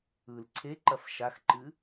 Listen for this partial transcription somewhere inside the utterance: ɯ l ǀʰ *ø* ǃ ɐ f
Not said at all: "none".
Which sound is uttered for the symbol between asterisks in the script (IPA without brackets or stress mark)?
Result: e